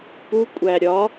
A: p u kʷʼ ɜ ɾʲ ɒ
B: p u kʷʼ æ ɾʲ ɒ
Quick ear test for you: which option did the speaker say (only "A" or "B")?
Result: B